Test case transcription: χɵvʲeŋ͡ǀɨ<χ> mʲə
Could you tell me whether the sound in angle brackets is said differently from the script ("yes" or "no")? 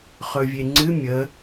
yes